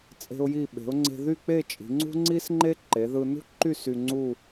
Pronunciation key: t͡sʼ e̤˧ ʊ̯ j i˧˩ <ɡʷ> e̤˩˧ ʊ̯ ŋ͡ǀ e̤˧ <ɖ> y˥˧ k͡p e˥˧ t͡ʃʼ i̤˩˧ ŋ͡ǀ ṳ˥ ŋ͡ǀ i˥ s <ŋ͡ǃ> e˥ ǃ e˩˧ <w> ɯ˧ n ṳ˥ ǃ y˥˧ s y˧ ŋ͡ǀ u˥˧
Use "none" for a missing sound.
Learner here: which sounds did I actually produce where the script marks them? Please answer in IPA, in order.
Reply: ɓ, ð, ŋ͡ǃ, ð

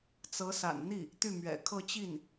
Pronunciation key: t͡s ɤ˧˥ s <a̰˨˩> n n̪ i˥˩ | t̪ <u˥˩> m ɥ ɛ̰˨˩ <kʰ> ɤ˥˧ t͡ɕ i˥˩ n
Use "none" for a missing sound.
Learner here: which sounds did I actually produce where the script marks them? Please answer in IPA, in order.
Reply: a̰˨˩, y˥˩, kʰ

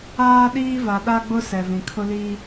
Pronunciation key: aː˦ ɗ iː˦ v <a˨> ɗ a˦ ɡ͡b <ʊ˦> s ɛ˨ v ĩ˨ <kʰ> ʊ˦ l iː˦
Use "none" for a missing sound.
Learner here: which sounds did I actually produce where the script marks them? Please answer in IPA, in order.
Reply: a˨, ʊ˦, kʰ

